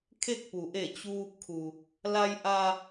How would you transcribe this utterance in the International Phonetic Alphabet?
kʰe˥˨k̚pu˩˧ʔe˧˩ t͡ɕuː˧p̚kʰu˩ | la˧j ʔa˧

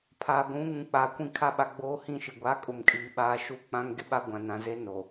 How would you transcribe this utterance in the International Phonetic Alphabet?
pʰaː˨ɡʷũ˨˦ŋũ˨k͡pa˨ kʷĩ˦˨kʰa˦ɓa˨ ɡ͡boː˦hĩ˦˨ʃi˨ ɡʷa˨˦kʼʊ˨mkʼiː˨ɓaː˨˦ ʃu˦k͡pã˦ŋ ɡɪ˦ɓa˦ ɡʷã˨nã˨ze˦ no˨

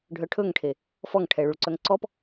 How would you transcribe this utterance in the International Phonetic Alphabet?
ɖʱœʈʰɵŋʈʰe | fɔŋʈʰɛɭuɭǀœŋ ǀɔp

